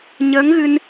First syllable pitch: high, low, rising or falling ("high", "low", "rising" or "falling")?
rising